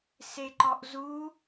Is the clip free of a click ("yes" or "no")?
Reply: no